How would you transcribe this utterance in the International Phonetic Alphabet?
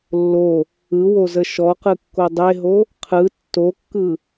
lː o | ɯ w o z ə ʃ ɔ q ɯ kː o dˤ e ɦ o | qʰ ɯ tː o kː ɯ

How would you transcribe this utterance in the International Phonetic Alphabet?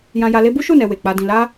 j ã˧ j a˧ l e˦ b u˦ ʃ u˦˨ n ɛ˨ w e˨ k͡p a˧ d ĩ˧ l a˦

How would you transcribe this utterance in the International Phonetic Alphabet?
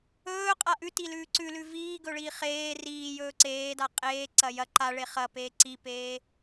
ɵː qʼ a ʔ ʉ t i l ʉː ǀ ʉ l ʉ v iː ɡ ɵ ɭ iː χ eː r iː j ɵː ǀ eː d a qʼ eː ǀ ɐ j ɐ ǃ a ɭ e χ ɐ p eː ǀ i p eː

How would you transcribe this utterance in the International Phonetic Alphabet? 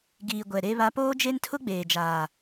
ɡ iː˨ ɡʷ ɛ˨ ɾ e˦ β a˦ p oː˦ d͡ʒ e˦ n tʰ ʊ˦ ɡ͡b eː˨ d͡ʒ aː˨

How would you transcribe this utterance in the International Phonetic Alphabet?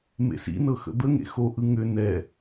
m ḛ s ḭ n ɤ x ə̰ d̪ ə ŋ ḛ x o ʔ ɯ ŋ ʏ n ɛ

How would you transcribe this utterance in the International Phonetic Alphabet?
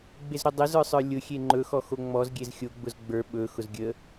ɡ͡b e z ɾ o dˤ ə z ə˞ sˤ ə˞ lʲ ʊ xʲ e ŋ͡ǃ ɵ x ɔ x o ŋ͡m ɔ z ɡʲ e z xʲ o ɡ͡b ʊ z ɡ͡b ə˞ ɓ ɵ x ʊ z ɡʲ ə

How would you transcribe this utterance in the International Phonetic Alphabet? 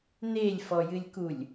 n e lʲ f ɔ j ɨ lʲ k u lʲ

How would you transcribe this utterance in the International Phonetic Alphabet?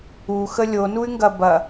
u x ə lʲ o n u y̯ ŋ ɡ ɐ b ɐ

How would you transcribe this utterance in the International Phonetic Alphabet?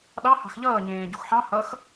ɗ ɑ h ɑ̤ x ʎ ʌː ɲ ẽː ɟ u x ħ ɑ̃ h ʌ x

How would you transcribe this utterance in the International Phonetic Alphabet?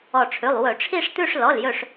ɔ˧˩ ʈ͡ʂʰ ʉ˩˧˩ lˠ w ɵ˧˩˧ ʈ͡ʂʰ i˥˧ ʂ t̪ ʉ˥˧ ʂ l ɔ˩˧˩ l j ɵ˧˩ ʂ

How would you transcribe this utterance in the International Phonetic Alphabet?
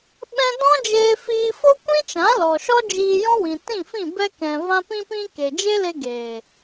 ɓ ɛ̃˧ d ɔ̃˦ d͡ʒ eː˧ f iː˧ f o˦ kʷ ĩ˦ t͡ʃ ã˨˦ l ɔ˨ ʃ ɔ˦ d͡ʒ iː˧ j ɔ̃˦ w ĩ˨ t ĩ˦˨ f ĩ˦˨ b ɛ˧ k ɛ̃˨ v ã˧ p ĩ˧ p ĩ˧ k e˨ d͡ʒ e˦ l e˧ ɡ eː˨

